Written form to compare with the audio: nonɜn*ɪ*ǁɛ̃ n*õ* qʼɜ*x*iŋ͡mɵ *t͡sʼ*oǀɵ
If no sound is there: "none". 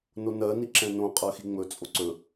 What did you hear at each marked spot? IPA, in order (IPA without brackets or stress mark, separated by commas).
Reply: i, õ, x, t͡sʼ